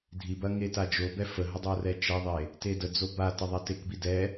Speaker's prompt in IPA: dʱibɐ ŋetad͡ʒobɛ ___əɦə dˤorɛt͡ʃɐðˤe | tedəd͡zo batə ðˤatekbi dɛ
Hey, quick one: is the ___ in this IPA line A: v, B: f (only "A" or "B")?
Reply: B